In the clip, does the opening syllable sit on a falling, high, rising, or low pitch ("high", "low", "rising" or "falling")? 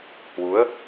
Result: rising